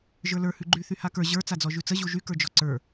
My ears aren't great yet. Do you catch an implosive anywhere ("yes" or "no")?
no